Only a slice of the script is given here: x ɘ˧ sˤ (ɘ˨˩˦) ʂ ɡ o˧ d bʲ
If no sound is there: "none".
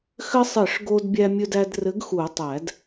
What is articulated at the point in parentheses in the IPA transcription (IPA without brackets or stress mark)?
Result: ɘ˨˩˦